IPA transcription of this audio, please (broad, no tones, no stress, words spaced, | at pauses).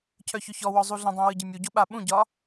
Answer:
cʰœçʏçɔwɔ zˤuɮə̃dˤũ wɯɟɯmʲuɟo ɓaɓũɟɒ